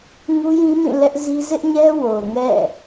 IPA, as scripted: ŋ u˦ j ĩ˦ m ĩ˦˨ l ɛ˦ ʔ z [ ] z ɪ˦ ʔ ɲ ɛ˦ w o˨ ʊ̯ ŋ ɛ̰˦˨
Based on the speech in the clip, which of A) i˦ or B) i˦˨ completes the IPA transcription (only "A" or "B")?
A